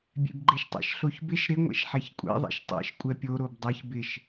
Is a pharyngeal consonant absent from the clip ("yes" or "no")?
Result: no